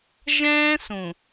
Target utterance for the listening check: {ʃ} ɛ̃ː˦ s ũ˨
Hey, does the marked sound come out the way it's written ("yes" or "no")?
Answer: no